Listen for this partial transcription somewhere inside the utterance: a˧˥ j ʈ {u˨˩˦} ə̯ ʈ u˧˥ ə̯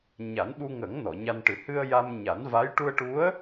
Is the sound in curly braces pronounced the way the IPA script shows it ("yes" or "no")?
no